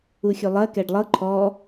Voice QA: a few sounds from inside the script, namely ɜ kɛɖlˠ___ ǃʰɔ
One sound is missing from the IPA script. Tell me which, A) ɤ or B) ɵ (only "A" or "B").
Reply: A